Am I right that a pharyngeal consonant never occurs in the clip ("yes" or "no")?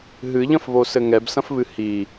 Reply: yes